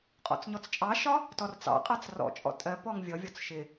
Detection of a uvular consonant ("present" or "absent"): present